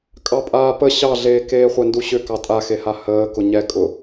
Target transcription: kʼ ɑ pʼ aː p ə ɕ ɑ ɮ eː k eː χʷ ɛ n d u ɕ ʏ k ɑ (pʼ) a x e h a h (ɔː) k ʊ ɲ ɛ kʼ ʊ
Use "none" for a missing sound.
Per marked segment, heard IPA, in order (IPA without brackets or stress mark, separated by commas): tʼ, əː